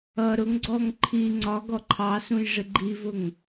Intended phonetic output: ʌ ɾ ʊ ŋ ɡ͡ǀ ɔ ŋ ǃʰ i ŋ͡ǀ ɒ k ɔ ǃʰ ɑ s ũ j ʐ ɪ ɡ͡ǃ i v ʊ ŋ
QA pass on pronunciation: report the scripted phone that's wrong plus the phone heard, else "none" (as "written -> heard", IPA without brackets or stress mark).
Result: k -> ɡ